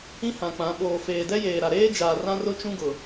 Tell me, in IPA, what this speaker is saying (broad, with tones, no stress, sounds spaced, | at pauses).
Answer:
ĩ˦ h ã˨ k͡p ã˨˦ ɓ oː˨ f eː˨ d ɛ˦ j eː˨ ɾ a˨ ɾ eː˦ d͡ʒ aː˨ r ã˦ r ʊ˦ t͡ʃ ũ˦ ɡ ʊ˨